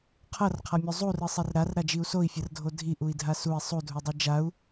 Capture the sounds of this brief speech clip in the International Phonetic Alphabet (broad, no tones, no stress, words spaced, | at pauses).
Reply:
qʰʌrqʰamʲo zˤurɯsˤir ɾarɾad͡ʒiu̯ soi̯fʲʌrdʱo dʱiʔui̯dʱa sui̯ sˤudʱudˤɯ d͡ʒau̯